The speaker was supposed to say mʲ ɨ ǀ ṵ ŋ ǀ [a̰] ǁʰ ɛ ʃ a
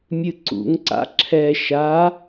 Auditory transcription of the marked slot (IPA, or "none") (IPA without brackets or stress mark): a̰